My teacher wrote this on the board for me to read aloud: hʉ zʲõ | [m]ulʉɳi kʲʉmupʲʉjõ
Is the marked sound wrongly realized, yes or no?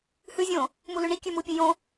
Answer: no